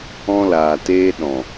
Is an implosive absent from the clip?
no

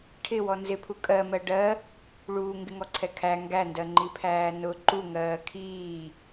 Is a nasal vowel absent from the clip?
yes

